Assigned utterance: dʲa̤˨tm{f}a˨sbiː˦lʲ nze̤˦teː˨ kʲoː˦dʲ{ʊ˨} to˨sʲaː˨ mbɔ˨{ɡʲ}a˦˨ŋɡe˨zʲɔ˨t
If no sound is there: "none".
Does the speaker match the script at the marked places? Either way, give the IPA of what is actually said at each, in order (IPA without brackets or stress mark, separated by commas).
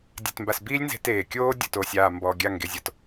b, ʊ˨, ɡʲ